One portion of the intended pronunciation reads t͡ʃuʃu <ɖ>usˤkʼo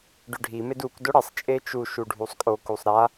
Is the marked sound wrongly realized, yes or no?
yes